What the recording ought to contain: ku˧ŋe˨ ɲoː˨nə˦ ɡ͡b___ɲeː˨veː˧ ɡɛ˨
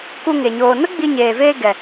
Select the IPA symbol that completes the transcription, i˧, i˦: i˧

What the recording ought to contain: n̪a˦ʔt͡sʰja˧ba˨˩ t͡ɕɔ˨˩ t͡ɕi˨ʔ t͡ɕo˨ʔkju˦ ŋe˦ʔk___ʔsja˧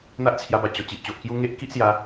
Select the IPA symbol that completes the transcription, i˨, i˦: i˦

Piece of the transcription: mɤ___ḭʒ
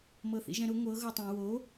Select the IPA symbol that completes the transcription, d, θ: θ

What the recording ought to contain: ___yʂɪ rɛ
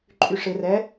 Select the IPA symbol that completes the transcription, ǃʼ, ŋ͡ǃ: ǃʼ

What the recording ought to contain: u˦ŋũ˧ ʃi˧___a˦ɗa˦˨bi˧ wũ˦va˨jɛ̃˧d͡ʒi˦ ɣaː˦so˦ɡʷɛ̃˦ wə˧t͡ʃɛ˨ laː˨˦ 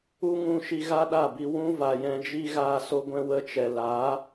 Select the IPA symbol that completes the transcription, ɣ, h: ɣ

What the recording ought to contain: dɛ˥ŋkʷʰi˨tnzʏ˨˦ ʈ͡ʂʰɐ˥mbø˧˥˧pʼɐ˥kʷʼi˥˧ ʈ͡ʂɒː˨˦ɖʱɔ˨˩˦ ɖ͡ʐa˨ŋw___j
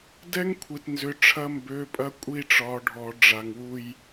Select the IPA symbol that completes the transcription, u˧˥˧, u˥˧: u˥˧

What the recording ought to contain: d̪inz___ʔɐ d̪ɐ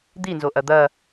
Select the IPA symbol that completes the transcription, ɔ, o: o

